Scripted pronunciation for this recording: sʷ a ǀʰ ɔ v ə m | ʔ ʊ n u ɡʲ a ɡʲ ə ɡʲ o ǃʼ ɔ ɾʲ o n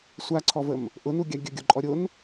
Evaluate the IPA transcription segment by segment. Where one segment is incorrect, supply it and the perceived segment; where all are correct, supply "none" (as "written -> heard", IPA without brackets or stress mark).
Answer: none